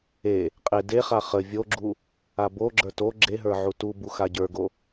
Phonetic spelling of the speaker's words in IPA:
e | qʼ e d e χ a χ ə vʲ o ɡ͡ǁ u | a b o ɡ͡ǁ ə˞ t o ɡ͡ǁ e ɦ ə˞ ʕ u t u b u x a ɟ ə˞ ɡ o

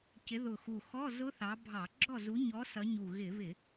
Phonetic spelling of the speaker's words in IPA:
c ɪ˨˦ ð ʊ˨˩ x u˨˩ x ɔ˧˥˧ z ʊ˦˥ θ ɑ˨˦ bʱ ɑ˧˩˧ ɡ͡ǁ ɔ˥˨ z u˨˦ ɲ ɔ˨˦ s ʌ˨˦ ɲ u˨˩ ɣ ɪ˧˩˧ β ɪ˧˩˧

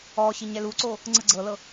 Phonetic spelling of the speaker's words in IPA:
ɔ ɕ i ɲ ɛ l u ǀ o | ŋ͡ǀ ɯ ɡ͡ǀ ɤ l ɤ

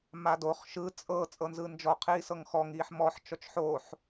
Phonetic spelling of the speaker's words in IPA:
m a d o χ ʃ ɯ t͡sʼ ɤ t͡sʼ ɤ n z ɯ n d͡ʒ ɔ qʰ iː s ɤ ŋ x ɔ ŋ iː ħ m ɔ ħ t͡ʃ ɔ t͡ʃ ħ oː ħ

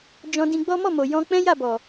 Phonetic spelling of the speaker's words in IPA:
d͡ʒ ɔ̃˧ d ĩ˧ ɡ͡b ɔ˦ m ɔ˦˨ m o˨ j ɔ̃˧ k͡p ɛ̃˦ j a˦˨ b ɔ˨

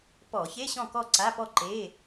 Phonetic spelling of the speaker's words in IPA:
p ɔ˧˩˧ ç e˧˥˧ ɕ ɔ̃˥˨ k ɔ˥˨ ǀ a˧˥˧ p ɔ˥˨ ǃ e˧˥˧

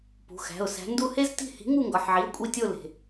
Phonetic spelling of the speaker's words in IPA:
p ṳ˩˧˩ x æ̤˩˧˩ ʊ̯ s æ̤˨˥ n d u˦˨ h e˥ z t i̤˦˨ h i̤˨˥ ŋ u˦˨ ŋ ɡ ɒ˩˧˩ ħ ʕ i˩˧˩ ʊ̯ kʷʼ i˦˨ tʲ o˦˨ l e̤˩

